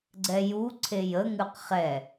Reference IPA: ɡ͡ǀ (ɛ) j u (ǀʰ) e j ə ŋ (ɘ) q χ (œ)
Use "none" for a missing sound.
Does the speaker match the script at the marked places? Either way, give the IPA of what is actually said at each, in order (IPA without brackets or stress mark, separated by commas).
ɛ, ǀʰ, ʉ, ɛ